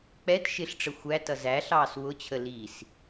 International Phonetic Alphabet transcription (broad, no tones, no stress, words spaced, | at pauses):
k͡pɛt ʃɪɬʈ͡ʂə xʷætʌ zæɬɑːs wʊt͡ɕʰə lis